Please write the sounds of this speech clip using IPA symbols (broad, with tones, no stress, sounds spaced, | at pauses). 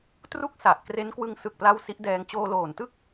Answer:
t r u˥˩ k̚ s a˨˩ ʔ k r e˦˥ n k w ɯ˧ ŋ s ɯ˨˩ k̚ p l a˧ w s i˦˥ ʔ d ɛː˧ ŋ t͡ɕ oː˧ l oː˨˩ n t ɯ˥˩ k̚